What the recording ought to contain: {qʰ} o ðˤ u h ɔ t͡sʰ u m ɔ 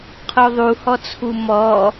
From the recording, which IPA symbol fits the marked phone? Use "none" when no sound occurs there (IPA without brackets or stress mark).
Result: qʰ